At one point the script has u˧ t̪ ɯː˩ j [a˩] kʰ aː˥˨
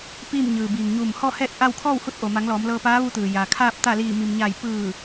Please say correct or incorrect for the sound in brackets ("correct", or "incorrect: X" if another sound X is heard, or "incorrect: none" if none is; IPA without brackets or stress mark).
correct